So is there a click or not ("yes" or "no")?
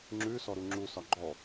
yes